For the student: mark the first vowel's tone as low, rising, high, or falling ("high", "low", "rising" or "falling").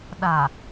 low